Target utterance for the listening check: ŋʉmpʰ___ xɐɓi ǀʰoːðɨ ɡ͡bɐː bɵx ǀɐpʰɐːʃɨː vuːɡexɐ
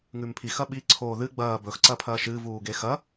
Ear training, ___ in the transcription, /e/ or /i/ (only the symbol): i